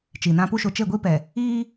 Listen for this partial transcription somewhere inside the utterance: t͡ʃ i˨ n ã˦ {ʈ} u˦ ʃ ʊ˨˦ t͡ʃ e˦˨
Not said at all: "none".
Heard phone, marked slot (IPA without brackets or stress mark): p